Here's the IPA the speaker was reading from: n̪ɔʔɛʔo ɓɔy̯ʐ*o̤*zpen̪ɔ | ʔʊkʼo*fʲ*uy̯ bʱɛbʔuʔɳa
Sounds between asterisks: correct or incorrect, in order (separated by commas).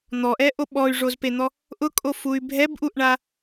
incorrect, incorrect